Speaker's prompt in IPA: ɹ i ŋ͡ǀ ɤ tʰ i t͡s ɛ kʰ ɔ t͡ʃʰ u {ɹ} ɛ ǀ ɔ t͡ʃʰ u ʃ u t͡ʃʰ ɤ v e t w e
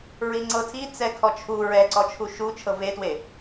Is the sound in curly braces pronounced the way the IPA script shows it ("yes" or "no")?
yes